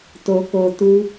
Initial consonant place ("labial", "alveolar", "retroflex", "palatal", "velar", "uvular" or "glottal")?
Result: alveolar